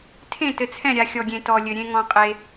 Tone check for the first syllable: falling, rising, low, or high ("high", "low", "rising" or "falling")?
falling